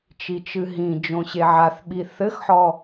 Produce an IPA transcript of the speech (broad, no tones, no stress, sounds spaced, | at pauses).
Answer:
t͡ʃ i t͡ʃ ɨ ɦ ĩ d͡ʒ õ ɕ e ʕ a θ ɓ i θ ɘ x ħ ɔ